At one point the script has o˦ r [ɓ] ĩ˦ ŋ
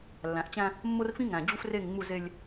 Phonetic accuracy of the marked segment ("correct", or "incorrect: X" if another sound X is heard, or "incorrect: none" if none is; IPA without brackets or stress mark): incorrect: f